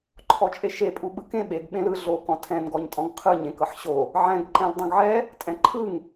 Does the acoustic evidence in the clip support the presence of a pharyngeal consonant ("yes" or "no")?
yes